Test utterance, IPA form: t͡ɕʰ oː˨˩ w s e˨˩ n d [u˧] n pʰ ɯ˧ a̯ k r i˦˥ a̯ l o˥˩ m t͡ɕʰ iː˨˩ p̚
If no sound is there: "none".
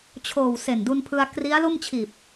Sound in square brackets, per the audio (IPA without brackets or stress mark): u˧